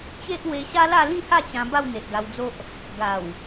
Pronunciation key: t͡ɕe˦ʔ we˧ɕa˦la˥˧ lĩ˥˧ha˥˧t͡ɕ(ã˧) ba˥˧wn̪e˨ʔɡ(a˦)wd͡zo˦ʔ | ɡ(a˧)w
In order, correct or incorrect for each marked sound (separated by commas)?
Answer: correct, incorrect, incorrect